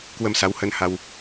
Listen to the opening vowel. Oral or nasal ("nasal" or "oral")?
oral